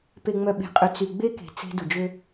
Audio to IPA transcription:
p e˨ ŋ͡m œ˨ ɓ e̤˨ qʼ ø˨ t͡s y˨ ɡ͡b e˦ k e̤˨ t͡s e̤˦ d u˨ d͡ʒ ø˦

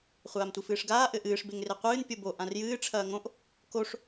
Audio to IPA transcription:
χʷ aː m tʷ i f ɨː ʂ ɡ aː ʔ ɘ ʔ ɨː ʂ b e ŋ r e qʷ ɨː n pʲ o b o ʔ ã r j ɨː ʈ͡ʂʰ ɐː ŋ õ ʔ | k o ʂ

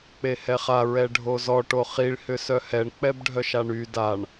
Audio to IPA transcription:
k͡p e h ɛ χ a ɹ ɛ ɖʱ o z ɔ ʈ o χ i ɭ h ʏ s œ h ɛ ɳ k͡p ɛ b ɖʱ œ ʃ a ɳ y d a ɳ

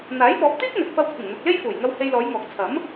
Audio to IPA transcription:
n̪ aː˨˥ j p ɔː˨˥ p̚ t̪ iː˥ k̚ n̪ ɵ˨ t̚ f ɐ˧ w kʷʰ ɪ˨˩ ŋ n̪ ʊ˨ k̚ l e˥ j f uː˨˩ j ŋ ɐ˧ w h e˧ j l ɔː˨˧ j ŋ ɔː˨ k̚ t͡sʰ ɐ˨˥ m

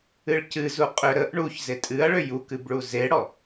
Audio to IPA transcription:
ɨ ɭ c ɨ z u qʼ ʏ ɾ ə ʔ ɳ u ç z e tʼ ɨ ɐ̯ ɭ ʏ j u k ɨ b ɭ u z e ɽ ɔ

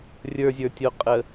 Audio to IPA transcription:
rʲ ə˞ zʲ ə˞ tʲ o qʼ ə

